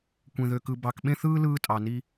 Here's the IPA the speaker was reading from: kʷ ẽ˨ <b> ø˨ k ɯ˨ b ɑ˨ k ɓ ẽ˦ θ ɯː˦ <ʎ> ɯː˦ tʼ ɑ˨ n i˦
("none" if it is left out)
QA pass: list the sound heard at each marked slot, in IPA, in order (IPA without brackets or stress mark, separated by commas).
ð, l